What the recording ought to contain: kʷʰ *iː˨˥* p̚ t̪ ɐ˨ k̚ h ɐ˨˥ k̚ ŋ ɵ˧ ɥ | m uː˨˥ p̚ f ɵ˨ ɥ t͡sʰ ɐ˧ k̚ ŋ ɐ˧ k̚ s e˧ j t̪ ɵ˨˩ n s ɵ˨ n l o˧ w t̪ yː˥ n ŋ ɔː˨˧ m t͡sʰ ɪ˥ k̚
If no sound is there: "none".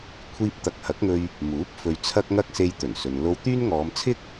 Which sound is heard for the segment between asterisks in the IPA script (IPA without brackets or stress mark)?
iː˧